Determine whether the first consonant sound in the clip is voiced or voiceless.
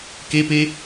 voiceless